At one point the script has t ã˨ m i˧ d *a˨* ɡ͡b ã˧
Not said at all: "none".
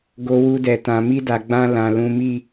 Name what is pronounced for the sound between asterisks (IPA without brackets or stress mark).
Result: a˨